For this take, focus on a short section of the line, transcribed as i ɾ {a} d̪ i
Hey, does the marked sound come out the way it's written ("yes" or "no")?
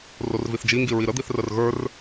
no